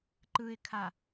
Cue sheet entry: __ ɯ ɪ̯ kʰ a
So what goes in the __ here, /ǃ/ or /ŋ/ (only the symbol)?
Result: ǃ